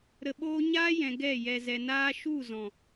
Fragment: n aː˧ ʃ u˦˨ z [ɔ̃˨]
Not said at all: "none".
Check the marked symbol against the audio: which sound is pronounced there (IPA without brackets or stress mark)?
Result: ɔ̃˨